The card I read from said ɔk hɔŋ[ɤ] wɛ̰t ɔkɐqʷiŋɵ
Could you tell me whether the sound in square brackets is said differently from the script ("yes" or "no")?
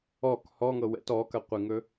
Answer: no